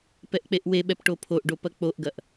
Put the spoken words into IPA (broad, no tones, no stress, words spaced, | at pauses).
pɛʔk͡peʔweɓɛp ʈopʰoʔɖo pɐk͡poʔɡɐʔ